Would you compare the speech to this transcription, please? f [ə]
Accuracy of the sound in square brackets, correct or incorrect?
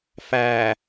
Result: incorrect